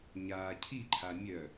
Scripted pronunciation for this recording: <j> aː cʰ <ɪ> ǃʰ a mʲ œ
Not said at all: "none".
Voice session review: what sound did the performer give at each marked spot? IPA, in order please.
ɲ, i

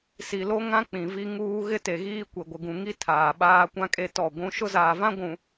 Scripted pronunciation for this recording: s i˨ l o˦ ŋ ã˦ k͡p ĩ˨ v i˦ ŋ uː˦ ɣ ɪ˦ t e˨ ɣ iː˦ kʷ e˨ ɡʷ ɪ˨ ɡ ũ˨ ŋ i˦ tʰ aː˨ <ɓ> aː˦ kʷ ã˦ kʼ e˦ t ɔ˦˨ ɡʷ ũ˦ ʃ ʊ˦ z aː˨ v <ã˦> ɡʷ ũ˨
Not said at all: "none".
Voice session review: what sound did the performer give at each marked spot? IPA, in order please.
ɓ, ã˦

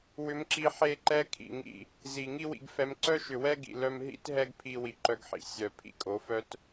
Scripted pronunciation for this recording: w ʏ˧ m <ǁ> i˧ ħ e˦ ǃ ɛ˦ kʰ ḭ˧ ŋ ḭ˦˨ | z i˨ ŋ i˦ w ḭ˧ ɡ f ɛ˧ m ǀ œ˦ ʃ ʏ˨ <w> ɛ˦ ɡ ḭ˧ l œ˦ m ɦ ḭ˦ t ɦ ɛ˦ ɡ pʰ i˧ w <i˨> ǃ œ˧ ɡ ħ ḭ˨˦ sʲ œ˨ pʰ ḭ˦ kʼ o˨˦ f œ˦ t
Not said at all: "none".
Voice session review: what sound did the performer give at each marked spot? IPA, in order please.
ǁ, w, i˨

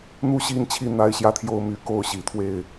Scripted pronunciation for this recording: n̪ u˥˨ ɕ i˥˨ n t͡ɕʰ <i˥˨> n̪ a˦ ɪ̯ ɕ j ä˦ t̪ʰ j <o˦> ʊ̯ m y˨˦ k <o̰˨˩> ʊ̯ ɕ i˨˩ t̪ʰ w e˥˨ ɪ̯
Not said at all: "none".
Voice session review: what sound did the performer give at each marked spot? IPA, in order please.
i˥˨, o˦, o˥˨

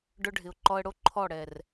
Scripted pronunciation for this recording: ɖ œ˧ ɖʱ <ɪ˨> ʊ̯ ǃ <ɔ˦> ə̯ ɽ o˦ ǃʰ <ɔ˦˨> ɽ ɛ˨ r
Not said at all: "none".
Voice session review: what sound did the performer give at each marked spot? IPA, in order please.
ɪ˨, ɔ˧, ɔ˦˨

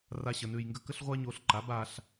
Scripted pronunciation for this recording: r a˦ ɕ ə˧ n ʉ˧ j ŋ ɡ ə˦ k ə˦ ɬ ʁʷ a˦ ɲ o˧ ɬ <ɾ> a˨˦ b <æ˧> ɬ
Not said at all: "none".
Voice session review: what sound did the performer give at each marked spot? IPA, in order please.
ǃ, a˧

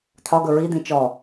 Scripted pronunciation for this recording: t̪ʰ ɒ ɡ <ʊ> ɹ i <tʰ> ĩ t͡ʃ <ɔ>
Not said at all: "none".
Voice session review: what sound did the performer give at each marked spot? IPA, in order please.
ɵ, d̪, ɔ

